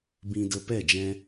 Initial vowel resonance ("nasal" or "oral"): nasal